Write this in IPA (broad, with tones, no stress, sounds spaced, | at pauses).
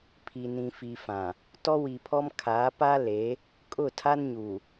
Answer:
pʰ i˨ n ĩ˨ f i˨ f ã˨ | t ɔ˦ w i˨ pʰ ɔ˦ m kʰ aː˨˦ p a˦ l e˨˦ | kʼ ʊ˦˨ tʰ a˦ n ɲ uː˨